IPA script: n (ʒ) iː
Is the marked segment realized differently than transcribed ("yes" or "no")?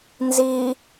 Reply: yes